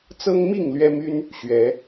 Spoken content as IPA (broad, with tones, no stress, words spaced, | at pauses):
t͡sɤ˥ŋmi˥˩ŋ lɥɛ˥my˥n | ɕɥɛ˧˥